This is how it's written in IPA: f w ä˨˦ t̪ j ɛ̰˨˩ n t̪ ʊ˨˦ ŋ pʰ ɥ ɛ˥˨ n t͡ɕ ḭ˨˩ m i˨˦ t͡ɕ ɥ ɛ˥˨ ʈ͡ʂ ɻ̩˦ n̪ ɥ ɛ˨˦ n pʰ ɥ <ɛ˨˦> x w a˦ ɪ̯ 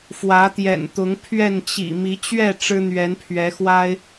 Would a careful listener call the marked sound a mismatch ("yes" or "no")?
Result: no